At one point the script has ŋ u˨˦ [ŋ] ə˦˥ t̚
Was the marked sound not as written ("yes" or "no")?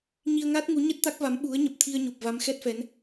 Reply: yes